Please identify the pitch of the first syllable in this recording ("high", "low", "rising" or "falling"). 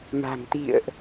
low